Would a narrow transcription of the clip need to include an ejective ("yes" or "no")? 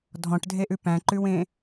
no